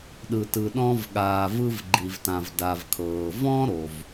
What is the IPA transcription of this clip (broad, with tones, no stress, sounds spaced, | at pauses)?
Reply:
ɗ ɯ˩ t ɯ˩ ɗ ɔ̃˧ v ɠ aː˩ v ɯ˧ v ɡ͡ǃ i˩ v t ã˩ v d a˩ v kʰ ɤː˩ v ɔ̃˥ ɾ o˩ v